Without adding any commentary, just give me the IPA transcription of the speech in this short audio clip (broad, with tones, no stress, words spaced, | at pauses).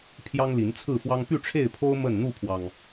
pʰjɑ˦ŋli˨˦n t͡sʰɹ̩˥˨fwɑ˦ŋ py˥˨ʈ͡ʂʰe˥˨ɪ̯pʰo˦ʊ̯ mə˥˨nn̪u˥˨pʰwɑ˩ŋ